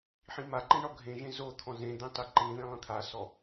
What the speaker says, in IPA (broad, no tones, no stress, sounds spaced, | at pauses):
ħ ĩ m a ǃ ĩ ɳ ɔ ɡʱ ẽ ʒ ẽ z o t̪ʰ ɔ̃ z ẽ d̪ ẽ tˤ e ǃ ĩ ð ẽ lˠ ĩ t̪ʰ a s ɔ